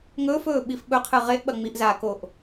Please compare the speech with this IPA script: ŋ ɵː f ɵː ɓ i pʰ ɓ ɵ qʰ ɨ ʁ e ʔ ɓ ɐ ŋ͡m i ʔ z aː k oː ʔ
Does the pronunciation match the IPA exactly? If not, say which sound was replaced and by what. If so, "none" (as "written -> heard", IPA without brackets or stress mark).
pʰ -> f